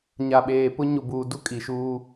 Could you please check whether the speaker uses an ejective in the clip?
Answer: yes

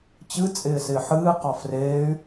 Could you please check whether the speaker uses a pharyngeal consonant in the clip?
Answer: yes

